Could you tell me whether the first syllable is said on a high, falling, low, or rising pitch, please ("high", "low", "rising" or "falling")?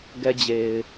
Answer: high